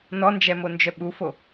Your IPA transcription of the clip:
nɔnd͡ʒɛmond͡ʒœ ɓufo

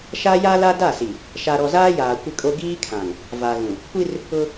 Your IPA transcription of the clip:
ʃa˦ja˦la˦ da˦˨si˨ | ʃa˨ɾɔ˨zaː˦ jaː˨kʷɪ˦kʼo˦ ɡiː˦kʰã˨ŋ | va˨ɣũ˨ | kʷi˦r | ʊ˦

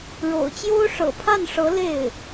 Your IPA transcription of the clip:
ɻo̰˨˩ʊ̯t͡ɕjo˥ʊ̯ ʂɤ̰˨˩pʰa˥˩nʂɤ˧˥ le˥˩ɪ̯

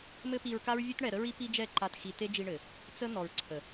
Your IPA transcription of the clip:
mɘ˦pi˧ɹka˦ɹ vʲɘ˦tɳɛ˨ɾə˦ɹi˦ pi˦d͡ʒɛ˦˨ǃa˧t xi˨ te˦d͡ʒi˧ɳɘ˨ | t͡sə˦ n̪ɔ˨ɹǀʰə˨

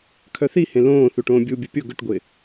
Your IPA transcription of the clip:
kʰœθihẽ lõː θuʈõːbʲubʲu pʲʊ ɡʊʈɡʷɪː

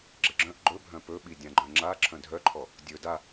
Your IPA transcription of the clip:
ɡ͡ǁɘɡ͡ǁœ̃ʔ ɡ͡ǃɵ bʱœ̃pɵɓi dʲãɡ͡ǃœ̃ŋ͡ǁa ǁʰœ̃dʱœǃʰɔ | dʲɵ da

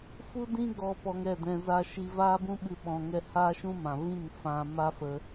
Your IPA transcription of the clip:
fu˦dĩ˦ ɡɔ˧ pɔ˧ŋɛ˦˨dɛ̃˧ za˧ʃi˧ vaː˦bũ˦ɓɨ˧ ɓɔ̃˧ŋɛ˦ haː˦ʃũ˦mã˨ vĩ˦˨ŋ fã˧ ma˦fə˧

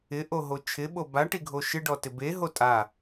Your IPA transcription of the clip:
ɪʔoɦo t͡ʃʰɪɓo baʈiɡʱo ʃɪɖɔtɪ beɦo tʼa

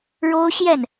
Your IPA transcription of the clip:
ɻo˥ʊ̯ɕjɛ˥˩n

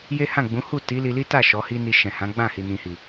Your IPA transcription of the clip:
je˦hã˦˨ɡ͡bũ˨˦ hu˦˨ ti˨˦li˧li˦ta˦˨ ʃɔ˨˦hi˦ ni˧ʃɛ̃˨hã˨˦ɡ͡bã˦˨ hi˨nĩ˨hi˨

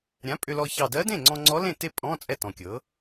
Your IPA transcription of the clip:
ɾʲã˩˥ pʼʏ˧lɔ˧ çɑ˨˩dɜ˧˥dẽ˥˩ŋ͡ǀɔ̃˧ ŋ͡ǀɔ˧˥lẽ˥˩te˥˩ pʼɔ̃˧˥˧ t͡sʼɛ˥˩tɔ̃˨˩kʲɤ˩˥

